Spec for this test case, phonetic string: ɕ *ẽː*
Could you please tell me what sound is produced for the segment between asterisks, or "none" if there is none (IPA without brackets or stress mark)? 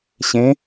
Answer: ẽ